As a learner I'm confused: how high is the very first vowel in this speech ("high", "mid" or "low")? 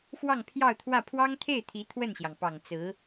low